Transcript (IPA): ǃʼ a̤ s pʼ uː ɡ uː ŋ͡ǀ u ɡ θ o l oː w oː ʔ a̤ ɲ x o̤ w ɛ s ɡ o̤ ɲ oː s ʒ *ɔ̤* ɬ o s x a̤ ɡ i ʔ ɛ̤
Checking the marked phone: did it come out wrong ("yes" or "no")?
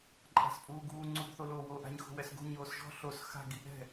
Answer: no